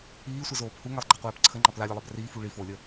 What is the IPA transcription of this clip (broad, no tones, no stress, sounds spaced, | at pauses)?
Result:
iː sʷ ə z oː p h u ŋ a lˠ ɡ͡ǃ a qʷ ɛː p ǀʰ ə ŋ͡ǃ ɑ p l a lʲ ɛ lˠ ɑ b r iː f u ɭ i f oː lʲ ə